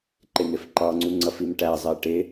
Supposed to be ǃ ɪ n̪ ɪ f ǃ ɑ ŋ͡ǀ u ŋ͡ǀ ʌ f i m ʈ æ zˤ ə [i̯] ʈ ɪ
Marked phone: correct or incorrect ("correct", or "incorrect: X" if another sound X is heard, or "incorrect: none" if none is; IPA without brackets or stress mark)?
correct